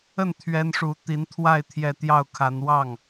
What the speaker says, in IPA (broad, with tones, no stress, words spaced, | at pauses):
ə˥˩n t̪ʰɥɛ˥nʂu˧˥ t̪i˧˥nt̪ʰwa˥˧ɪ̯ t̪ʰjɛ˥˧ t̪jɑ˥˩ʊ̯kʰa˧˥n wɑ˥˩ŋ